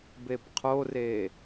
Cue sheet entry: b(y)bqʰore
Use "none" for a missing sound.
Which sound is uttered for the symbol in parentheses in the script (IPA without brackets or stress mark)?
e